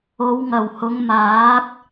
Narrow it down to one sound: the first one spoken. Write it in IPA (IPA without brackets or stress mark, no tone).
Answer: o